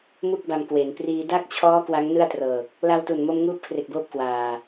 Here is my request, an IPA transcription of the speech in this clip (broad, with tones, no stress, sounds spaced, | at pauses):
m u˥˩ k̚ b a˧ m k w e˩˦ n p r iː˧ d a˥˩ k̚ t͡ɕʰ ɔː˦˥ k w a˦˥ ŋ n ɯ˥˩ a̯ t r ɤː˨˩ k̚ | l a˧ w t u˨˩ n m o˧ m ŋ uː˥˩ p̚ kʰ r e˨˩ k̚ b oː˥˩ p̚ k w aː˨˩